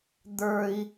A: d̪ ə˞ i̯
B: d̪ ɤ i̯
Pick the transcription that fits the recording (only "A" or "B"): A